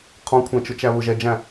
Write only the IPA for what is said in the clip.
qʰ ɔ̃ kʷʰ æ̃ t͡ʃ ʊ t͡ʃ æ β ʊ ʒ ɛ d͡ʒ æ̃

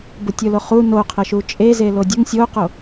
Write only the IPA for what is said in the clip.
b ʊ tʲ ʊ l o χ u n o qʰ ə ʃ u t͡ʃʼ e z e l o dʲ ʊ ŋ sʲ o q o

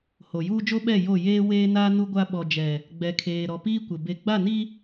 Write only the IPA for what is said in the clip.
h o˨ j uː˦ d͡ʒ o˦ ɓ ɛ˦˨ j o˦˨ j eː˦ w eː˦ n a˦ n u˦ ɡʷ a˦ ɓ ɔ˨ d͡ʒ ɛ˨ | ɡ͡b ɛ˨ kʰ eː˨ ɾ ɔ˨ p iː˦ kʷ ɪ˨ b e˨ ɡ͡b a˦˨ n i˦

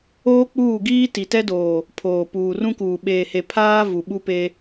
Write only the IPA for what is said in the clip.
oː˦ k͡p uː˦˨ ɡ iː˦ t i˨ t ɛ˦ d oː˨ | pʰ oː˨ p uː˨ r ũ˦ k uː˨ ɓ eː˨ h e˨ pʰ aː˦ v u˨ ɓ u˦ p e˦

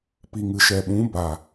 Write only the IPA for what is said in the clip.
p i˨ ŋ ɨ˨ ʃ ɛ˨ ɓ ũ˨˦ b a˨

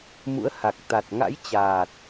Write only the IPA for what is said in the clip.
m ṵ˧˥ ə̯ h a˨˩ k̚ t̪ a˨˩ t̚ ŋ a̰˧˥ j t͡ɕ aː˨˩ t̚

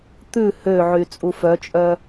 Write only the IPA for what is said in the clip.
t̪ ʉ h ø ʕ y t͡sʼ u f œ t͡ʃʼ œ

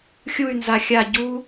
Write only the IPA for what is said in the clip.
xʲ u y̯ n z a xʲ a ɟ u

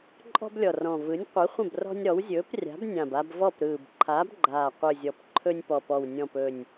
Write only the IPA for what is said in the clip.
ǃʼ ɔ̤˦ b lʲ ɔ˨˩ r ɔ̃˨˩ v ɯ˨˥ nʲ qʷ ɯ˨˥ χʷ ə̃˥˨ b r ɔ̤˦ nʲ ɾ ɔ˨˥ w zʲ ɵː˨˥ p rʲ a̤˨˥ b nʲ ã˨˩ b a˦ b v ɔ˥˨ p ɾ ɯː˨˩ b ǃʰ aː˨˥ b ɡ͡ǃ aː˨˩ qʷ ɯ˨˩ zʲ ɔ˨˩ p ǃʰ ɵ˦ nʲ p ɔ˨˩ p ɔ˨˩ w nʲ ɔ̃˨˩ p ɵ˨˩ nʲ

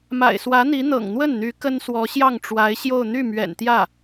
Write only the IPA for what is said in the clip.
m a̰˨˩ ɪ̯ s w ä˧˥ n̪ i˧˥ n̪ ɤ̰˨˩ ŋ n̪ w ə˥˩ n n̪ y˧˥ k ə˥ n s w ɔ˧˥ ɕ j ɑ˥˩ ŋ ʈ͡ʂ w a˧˥ ɪ̯ ɕ j o˥˧ ʊ̯ n̪ y˥˩ m ɥ ɛ̰˨˩ n t̪ j ä˥˩

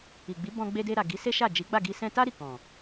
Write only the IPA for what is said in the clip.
i˨ ɡ͡b i˨˦ b ɔ̃˧ ɡ͡b e˧ d e˧ ɾ a˨ ɡ i˨˦ s e˦ ʃ a˦˨ d͡ʒ i˨˦ ɡ͡b a˦˨ ɡ i˧ s ɛ̃˧ t a˦ ɾ i˦˨ k ɔ̃˨

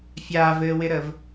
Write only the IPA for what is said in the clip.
fʲ aː v ɘː w ɪ ɾ əː v

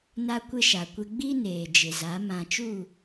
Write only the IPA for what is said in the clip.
n a˦ kʷ ɪ˦ ʃ a˨ kʷ ɪ˦ ɡ͡b i˦ n eː˨ d͡ʒ ɪ˨ z a˨˦ m ã˨ t͡ʃ u˦˨

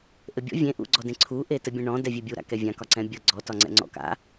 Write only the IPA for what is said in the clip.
ʔ ɘ bʲ ɔ̰ vʲ ẽ ʔ ṵ ɡ͡ǀ ɔ d ẽ ǀʰ u ʔ e t ɘ bʲ ẽ ɳ ɔ̃ d ɛ vʲ e bʲ u ɾ a̰ k ɛ vʲ ã k ɒ ǀ ɛ̃ bʲ ʌ ɡ͡ǀ ɔ t ɒ ŋ͡ǀ ɛ̰ ŋ͡ǀ ɔ̰ k a̰

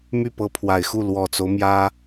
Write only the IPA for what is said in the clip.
m y˥˩ p ɤ˧˥ pʰ w a˨˩ ɪ̯ x u˥˩ l w ɔ˨˩ t͡s o˦ ʊ̯ m j ä˥

